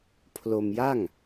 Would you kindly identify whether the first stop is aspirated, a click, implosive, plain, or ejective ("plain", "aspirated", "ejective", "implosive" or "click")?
aspirated